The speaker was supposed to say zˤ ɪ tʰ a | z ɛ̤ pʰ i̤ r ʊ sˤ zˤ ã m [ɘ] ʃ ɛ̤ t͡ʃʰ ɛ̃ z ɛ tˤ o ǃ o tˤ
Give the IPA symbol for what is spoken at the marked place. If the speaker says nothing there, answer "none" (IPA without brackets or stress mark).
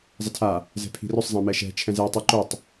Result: ɛ